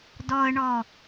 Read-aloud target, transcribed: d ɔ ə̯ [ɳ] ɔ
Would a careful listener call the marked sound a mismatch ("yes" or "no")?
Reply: no